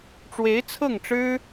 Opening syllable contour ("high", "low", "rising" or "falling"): rising